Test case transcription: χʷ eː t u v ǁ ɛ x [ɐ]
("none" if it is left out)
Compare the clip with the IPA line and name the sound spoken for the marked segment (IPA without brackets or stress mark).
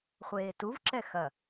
ɐ